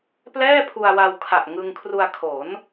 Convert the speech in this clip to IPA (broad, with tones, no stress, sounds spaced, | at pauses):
p l ɛː˥˩ pʰ u˧ a̯ w a˧ w kʰ a˨˩ ʔ ŋ ɯ˧ ŋ kʰ r u˧ a̯ kʰ o˩˦ n